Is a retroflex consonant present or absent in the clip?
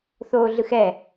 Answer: absent